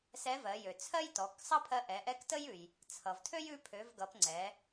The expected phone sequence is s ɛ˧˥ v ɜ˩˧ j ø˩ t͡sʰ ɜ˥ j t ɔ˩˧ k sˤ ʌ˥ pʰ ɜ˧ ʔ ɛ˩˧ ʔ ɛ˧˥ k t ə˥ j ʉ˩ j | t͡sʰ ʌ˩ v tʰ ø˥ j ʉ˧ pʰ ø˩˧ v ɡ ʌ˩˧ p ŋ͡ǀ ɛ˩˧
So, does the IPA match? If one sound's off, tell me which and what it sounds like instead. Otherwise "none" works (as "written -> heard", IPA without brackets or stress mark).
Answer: none